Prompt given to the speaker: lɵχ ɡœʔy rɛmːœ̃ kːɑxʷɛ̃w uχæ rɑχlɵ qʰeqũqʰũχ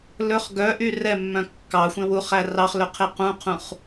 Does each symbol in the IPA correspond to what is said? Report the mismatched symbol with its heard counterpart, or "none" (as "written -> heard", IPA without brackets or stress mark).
none